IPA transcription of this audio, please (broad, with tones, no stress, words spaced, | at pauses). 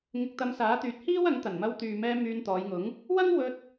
ŋɪ˧k̚t̪ɐ˧msaː˨˥t̪yː˨˥t̚ hiː˥wɐ˨˥ŋ t̪ɐ˨˩nmɐ˧w t̪yː˨mɛː˧ myː˧nt̪ɔː˨˧jŋʊ˨˥ŋ | wɐ˥ŋwɵ˧t̚